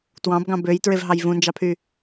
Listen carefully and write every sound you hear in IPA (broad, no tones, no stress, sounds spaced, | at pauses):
t w ɑ̃ b ɡ ɑ̃ b ø j t ɹ e v ɦ ɑ j v ũ n d͡ʒ ɑ pʰ y